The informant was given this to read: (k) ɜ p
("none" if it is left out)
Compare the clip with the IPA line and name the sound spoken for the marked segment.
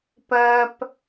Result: p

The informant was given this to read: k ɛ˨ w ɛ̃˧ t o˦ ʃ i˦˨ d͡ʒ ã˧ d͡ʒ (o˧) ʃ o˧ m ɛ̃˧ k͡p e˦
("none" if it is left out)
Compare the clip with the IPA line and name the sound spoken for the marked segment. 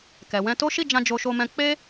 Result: o˧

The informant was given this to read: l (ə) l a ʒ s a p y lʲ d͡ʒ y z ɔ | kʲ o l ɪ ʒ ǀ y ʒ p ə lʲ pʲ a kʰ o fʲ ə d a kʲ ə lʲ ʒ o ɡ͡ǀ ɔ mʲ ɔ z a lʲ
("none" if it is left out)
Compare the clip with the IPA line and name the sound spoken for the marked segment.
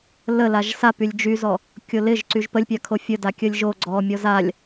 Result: ə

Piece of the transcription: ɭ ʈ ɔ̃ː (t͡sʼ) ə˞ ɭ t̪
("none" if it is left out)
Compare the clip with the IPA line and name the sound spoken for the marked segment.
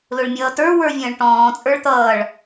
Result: t͡sʼ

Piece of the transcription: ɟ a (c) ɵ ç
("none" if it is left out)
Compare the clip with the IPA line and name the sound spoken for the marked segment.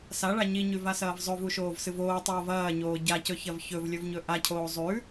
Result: c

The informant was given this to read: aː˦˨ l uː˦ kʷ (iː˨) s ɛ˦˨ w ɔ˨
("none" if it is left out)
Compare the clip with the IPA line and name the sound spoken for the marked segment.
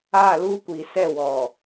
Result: iː˨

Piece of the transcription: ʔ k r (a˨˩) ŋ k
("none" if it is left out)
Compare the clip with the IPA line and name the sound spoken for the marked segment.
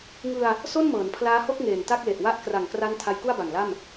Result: a˨˩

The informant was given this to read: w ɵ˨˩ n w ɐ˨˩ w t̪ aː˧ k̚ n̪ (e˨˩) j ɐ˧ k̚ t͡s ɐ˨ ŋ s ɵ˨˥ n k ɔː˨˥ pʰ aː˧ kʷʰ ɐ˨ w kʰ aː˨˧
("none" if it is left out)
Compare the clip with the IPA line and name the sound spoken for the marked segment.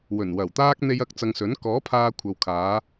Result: e˧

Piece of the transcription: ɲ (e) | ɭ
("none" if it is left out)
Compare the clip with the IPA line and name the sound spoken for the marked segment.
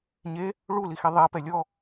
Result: e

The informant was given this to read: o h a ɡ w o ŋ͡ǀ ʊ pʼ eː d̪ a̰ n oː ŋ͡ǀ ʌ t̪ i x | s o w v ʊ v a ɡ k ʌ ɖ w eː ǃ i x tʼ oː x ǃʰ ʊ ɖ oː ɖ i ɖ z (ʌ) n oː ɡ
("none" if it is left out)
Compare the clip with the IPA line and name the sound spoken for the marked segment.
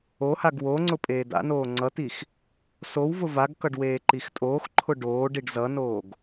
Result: ʌ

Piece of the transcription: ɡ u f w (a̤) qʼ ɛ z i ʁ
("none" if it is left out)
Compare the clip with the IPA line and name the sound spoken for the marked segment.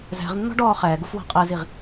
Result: a̤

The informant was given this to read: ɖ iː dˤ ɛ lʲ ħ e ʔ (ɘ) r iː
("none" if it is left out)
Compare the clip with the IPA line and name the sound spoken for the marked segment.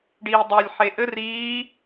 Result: ɘ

